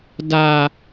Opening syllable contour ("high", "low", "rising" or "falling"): low